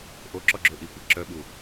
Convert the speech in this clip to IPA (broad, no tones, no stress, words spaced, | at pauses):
ʔoǁɔɡ͡ǁø ʔikʷɛ ǁœɓu